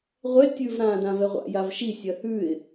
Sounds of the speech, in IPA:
ʁʷɛ tʲʉv ɾãːdãvɛʁʷa̰ javʃi sʲɜhʉɪ̯

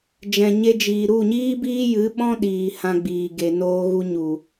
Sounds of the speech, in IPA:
d͡ʒɛ̃˨ɲe˧d͡ʒiː˨ ɾu˦˨ɲiː˦biː˦jɨ˨˦ ɓɔ̃˦ ɗiː˨ hã˧ɡ͡biː˨ɡe˨ noː˧ ɣu˧ɲu˨

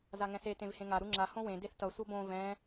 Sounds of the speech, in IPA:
zaŋɛ̃se tẽvhẽŋa ɾuŋ͡ǁa hõwẽ deθtʌ sʷʌbõ vɛ̃

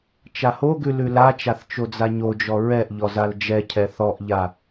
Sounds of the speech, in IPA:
t͡ʃahoɡʉ lʉlat͡ʃaθ t͡ʃod͡zaɲod͡ʒɔ ɹɛʔ ʎɔzald͡ʒɛcʰɛ θɔʔʎa

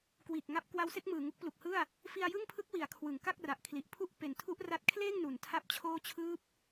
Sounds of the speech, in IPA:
kwiː˨˩k̚ŋa˦˥p̚ kwa˦˥wse˦˥k̚ mɯː˨˩ŋu˦˥k̚plu˨˩k̚hɯ˥˩a̯ | fi˧a̯jɯ˥˩ŋpʰɯ˦˥k̚ wi˩˦a̯kʰwɯ˩˦ŋ ka˥˩k̚ra˨˩ʔkʰli˨˩ʔpʰu˥˩ʔ pe˩˦ntʰu˦˥ʔ ra˥˩t̚ kʰleː˥˩ŋ nu˩˦n tʰa˥˩p̚t͡ɕʰoː˥˩ t͡ɕʰɯː˦˥p̚

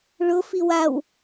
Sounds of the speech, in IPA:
ɭʊ fiwaw

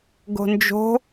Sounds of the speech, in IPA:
ɡo̤nd͡ʒo̤

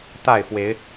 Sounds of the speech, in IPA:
t̪a˥˨ɪ̯fwe˨˦ɪ̯

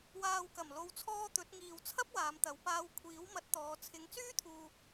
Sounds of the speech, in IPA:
waː˨wkɐ˨˩mlo˨wt͡sʰɔː˧ t̪ɵ˨˥t̚ ŋiː˧w t͡sʰɐ˥p̚waː˨˧mt̪ɐ˨˧wpaː˧w kʷʰiː˨˥wmɐ˨˥t̚t̪ɔː˨˧ t͡sʰɪ˨˥ŋ t͡syː˥t̪ʰuː˧

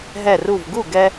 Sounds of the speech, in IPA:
ɦɛ˧˩ru˧˩vɡu˥˩ ɡɛ˧

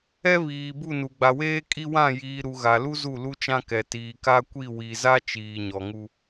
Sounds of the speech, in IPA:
ɛ˦βiː˨bu˦˨nu˨ ɡ͡ba˨weː˦kʼi˦wã˦˨ jiː˨ɾu˨ ɣa˨lu˦ zu˦˨lu˦t͡ʃã˦kɛ˨ tiː˨ka˦kʷi˦˨ wi˨za˦ t͡ʃiː˨ɲɔ˨ŋu˦

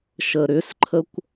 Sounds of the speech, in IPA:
ʃəɾʏsǃʰəkʷ

